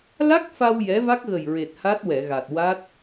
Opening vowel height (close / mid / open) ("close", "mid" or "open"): open